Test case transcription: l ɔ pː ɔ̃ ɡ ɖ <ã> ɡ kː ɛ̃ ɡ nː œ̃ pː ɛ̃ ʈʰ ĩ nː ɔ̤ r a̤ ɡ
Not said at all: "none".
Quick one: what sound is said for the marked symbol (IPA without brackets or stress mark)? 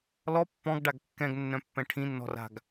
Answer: a